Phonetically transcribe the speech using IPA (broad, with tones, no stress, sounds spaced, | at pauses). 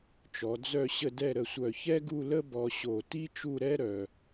t͡ʃ ɔ˩˧ d͡z œ˥˧ ɕ ə˥˧ d ɛ˥˧ ɾ ə˧˩ sʷ œ˧˩ ç ɛ˥ ɡ u˥˧ l ə˥ b ɔ˧ ɕ o˧˩ t i˥ t͡ʃ u˥˧ ɾ ɛ˥ ɾ œ˧